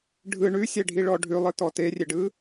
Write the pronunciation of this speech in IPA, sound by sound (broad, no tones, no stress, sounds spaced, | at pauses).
ɖʱ ɯ ɳ ʉ sʲ ɛ ɖʱ i ɭ ɔ ɖʱ ʉ lˠ ɯ t ɔ t e rʲ e ɖ ɯ